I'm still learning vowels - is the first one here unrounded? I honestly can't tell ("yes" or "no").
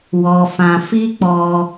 no